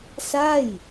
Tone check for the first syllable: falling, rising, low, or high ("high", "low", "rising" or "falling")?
falling